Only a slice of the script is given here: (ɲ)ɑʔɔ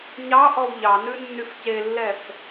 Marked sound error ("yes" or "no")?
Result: no